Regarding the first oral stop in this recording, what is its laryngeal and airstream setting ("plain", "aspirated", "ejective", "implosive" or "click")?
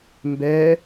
plain